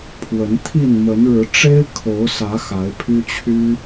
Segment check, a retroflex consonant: present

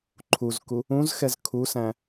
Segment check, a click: present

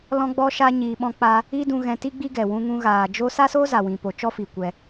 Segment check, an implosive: present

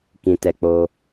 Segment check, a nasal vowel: present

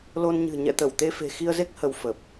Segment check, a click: absent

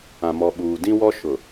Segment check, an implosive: present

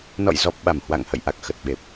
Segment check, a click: absent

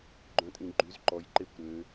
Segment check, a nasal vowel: present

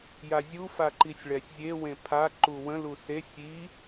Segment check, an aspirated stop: present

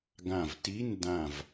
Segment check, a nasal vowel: present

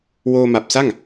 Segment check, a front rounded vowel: absent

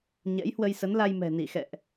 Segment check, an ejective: absent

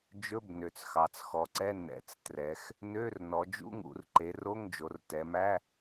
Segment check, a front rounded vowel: present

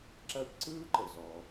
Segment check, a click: present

